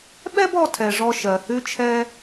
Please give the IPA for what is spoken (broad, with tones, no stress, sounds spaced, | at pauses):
ɓ ɛ˥ b ɔ˧ tʰ ɛ˩ ʐ ɔ˧ ʃ ɜ˩ h ʉ˧ t͡ʃʰ ɛ˧